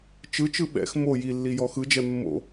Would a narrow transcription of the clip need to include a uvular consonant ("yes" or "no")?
no